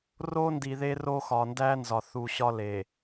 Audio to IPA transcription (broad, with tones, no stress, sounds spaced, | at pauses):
r o˦ n d i˨ ð e˦ r o˦ x ɒ˨ n d æ˦ n z ɒ˨ θ u˨ ɕ ɒ˦ l e˨